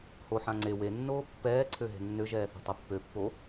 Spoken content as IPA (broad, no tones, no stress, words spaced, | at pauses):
hoħã ŋ͡ǀe wenːoː pːɛːǀʰø ɦe̤nːøʒɛː θo̤tˤepːøpːo